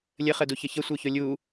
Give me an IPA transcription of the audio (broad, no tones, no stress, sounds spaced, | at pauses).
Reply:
lʲ ə χ ə d u ç ə ç ə sʷ ə˞ ç o lʲ u